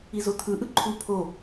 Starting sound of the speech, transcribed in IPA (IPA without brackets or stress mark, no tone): i